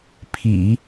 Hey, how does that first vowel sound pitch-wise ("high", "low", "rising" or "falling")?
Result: low